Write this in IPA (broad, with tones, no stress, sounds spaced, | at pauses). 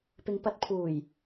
p ɪ˨˧ ŋ p ɐ˨˥ t̚ pʰ uː˨˩ j